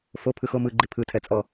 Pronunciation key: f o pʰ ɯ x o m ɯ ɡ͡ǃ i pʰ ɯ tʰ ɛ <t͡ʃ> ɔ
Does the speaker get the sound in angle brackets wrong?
yes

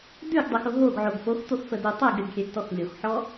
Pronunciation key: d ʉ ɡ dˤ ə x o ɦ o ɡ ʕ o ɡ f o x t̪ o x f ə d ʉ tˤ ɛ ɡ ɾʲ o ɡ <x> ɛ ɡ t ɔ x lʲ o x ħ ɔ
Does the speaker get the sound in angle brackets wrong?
yes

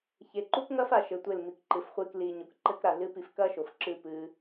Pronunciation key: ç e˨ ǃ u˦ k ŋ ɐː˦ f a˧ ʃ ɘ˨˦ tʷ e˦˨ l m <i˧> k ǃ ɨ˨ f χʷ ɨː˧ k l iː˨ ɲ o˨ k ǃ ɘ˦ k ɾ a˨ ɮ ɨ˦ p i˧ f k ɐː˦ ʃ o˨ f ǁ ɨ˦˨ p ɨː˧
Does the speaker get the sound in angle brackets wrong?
yes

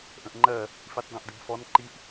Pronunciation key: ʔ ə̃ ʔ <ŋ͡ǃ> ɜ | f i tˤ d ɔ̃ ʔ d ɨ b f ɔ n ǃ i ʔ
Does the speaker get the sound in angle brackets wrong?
no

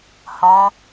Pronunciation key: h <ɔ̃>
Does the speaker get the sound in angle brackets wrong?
no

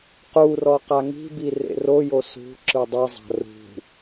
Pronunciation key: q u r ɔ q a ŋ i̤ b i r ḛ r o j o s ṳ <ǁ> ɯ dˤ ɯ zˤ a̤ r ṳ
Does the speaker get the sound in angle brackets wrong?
no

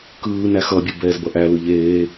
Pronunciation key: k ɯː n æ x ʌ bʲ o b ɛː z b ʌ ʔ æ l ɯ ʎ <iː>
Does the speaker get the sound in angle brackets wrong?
yes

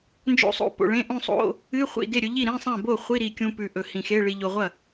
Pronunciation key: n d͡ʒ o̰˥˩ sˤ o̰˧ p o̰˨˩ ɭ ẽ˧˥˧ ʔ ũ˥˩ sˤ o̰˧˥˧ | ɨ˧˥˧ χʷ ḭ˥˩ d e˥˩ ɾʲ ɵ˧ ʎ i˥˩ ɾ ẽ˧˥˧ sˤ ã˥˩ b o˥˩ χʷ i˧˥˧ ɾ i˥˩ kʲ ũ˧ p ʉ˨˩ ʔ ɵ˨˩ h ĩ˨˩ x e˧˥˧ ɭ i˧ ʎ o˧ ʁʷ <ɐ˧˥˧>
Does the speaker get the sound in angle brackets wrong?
yes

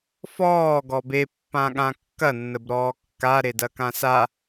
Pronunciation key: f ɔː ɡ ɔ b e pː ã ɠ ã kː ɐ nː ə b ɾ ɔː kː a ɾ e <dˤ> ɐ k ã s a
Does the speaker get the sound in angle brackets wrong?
yes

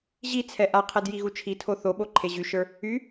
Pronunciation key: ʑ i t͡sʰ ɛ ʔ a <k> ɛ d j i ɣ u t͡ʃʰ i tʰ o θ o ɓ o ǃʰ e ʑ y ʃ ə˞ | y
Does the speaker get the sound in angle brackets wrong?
yes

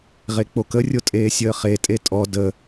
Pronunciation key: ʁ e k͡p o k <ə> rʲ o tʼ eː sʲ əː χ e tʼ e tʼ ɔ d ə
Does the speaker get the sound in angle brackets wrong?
no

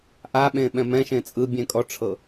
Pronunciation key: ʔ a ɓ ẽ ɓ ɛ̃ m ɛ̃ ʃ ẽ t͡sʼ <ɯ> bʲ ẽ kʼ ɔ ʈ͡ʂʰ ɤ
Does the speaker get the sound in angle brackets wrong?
no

